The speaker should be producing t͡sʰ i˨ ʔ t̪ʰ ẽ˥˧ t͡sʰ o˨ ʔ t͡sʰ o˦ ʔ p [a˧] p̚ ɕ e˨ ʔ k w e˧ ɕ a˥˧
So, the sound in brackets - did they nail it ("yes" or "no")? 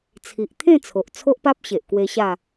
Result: no